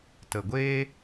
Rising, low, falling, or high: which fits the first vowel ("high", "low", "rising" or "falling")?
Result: low